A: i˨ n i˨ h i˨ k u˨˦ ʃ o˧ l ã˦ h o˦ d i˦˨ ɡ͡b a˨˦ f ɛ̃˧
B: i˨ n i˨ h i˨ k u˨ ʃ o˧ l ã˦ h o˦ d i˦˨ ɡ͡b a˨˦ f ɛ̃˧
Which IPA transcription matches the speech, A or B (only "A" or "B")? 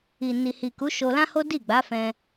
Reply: A